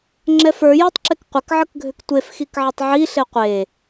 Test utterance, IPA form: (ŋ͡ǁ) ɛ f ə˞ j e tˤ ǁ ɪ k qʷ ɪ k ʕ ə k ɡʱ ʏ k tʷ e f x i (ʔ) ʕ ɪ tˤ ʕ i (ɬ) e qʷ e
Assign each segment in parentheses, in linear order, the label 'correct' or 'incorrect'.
correct, incorrect: k, correct

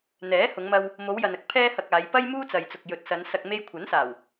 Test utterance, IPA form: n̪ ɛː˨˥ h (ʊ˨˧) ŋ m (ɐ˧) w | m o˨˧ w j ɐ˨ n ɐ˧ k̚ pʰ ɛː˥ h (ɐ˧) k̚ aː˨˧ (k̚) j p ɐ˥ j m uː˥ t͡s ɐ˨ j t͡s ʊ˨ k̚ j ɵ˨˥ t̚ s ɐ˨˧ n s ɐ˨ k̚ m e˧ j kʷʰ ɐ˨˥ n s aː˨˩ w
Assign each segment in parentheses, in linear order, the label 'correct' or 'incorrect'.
correct, correct, correct, incorrect: none

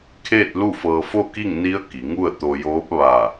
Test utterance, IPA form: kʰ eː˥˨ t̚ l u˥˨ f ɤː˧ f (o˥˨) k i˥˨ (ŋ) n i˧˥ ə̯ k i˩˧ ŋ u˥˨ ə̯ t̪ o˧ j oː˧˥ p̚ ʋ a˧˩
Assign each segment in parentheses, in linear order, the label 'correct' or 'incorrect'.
correct, correct

